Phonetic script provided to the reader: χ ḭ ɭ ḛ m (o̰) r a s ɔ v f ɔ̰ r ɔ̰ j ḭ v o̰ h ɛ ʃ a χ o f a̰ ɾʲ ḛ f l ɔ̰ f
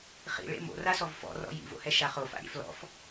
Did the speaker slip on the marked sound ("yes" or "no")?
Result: no